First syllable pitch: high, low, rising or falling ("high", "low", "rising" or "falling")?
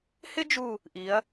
high